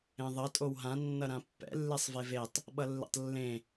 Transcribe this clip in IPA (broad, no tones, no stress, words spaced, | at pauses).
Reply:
ẽðˤʌ tʼowɦã nːʌɾãpːɛ̰ lːesˤvevetˤ | ɓʌlːḛtˤlːẽ